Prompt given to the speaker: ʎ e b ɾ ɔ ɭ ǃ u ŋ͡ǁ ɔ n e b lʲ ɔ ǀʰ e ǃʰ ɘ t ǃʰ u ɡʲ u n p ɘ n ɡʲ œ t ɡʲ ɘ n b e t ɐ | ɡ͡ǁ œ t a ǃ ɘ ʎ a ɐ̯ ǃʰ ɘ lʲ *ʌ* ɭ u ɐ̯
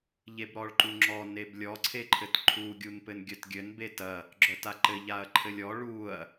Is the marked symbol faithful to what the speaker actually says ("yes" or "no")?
no